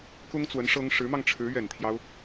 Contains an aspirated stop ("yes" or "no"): yes